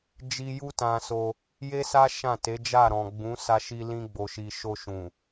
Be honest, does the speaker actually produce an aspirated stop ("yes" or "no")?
no